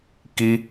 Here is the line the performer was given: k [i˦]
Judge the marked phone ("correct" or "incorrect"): correct